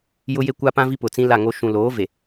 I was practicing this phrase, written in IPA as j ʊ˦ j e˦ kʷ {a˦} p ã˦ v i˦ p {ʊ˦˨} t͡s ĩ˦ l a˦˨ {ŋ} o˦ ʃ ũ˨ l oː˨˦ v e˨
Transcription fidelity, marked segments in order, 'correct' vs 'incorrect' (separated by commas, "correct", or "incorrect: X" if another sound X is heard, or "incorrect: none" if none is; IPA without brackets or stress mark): correct, incorrect: ʊ˨, correct